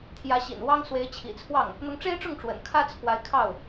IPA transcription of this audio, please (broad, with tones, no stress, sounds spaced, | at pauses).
t̪ʰ j ä˧˥ ɕ ḭ˨˩ n w ɑ˥ ŋ s w e˧˥ ɪ̯ t͡ɕʰ ḭ˨˩ t͡sʰ w ɑ˥˩ ŋ | n̪ ʊ˧˥ ŋ ʈ͡ʂ e˥ ɪ̯ ʈ͡ʂ ʊ˥˩ ŋ ʈ͡ʂ w ə̰˨˩ n kʰ ä˥ t͡sʰ w a˧˥ ɪ̯ kʰ ɑ˥˩ ʊ̯